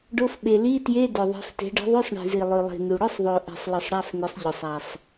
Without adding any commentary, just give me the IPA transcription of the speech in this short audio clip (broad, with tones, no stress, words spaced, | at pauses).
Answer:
ɖo˧˥˧fɓe˨˩ li˧˥˧tje˧˥˧ dɵ˨˩ ðˤe̤˨˦fte̤˨˦ ɖi̤˨˦ðˤʉ˧˥˧sˤɳi̤˨˩zi˨˩ lˠʉ˨˩lˠi̤˨˩nu˨˩ ɽɵ˧˥˧sˤðˤo˨˩ʔe̤˨˩sˤ lɨ˨˩sˤɽa˧˥˧fne˨˦sˤ ʎɵ˨˩sˤa˨˩sˤ